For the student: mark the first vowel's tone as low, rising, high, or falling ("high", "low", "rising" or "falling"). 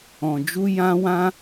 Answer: low